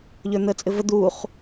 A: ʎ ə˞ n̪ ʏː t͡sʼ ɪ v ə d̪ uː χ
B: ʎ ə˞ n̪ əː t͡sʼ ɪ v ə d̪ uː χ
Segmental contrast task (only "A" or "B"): B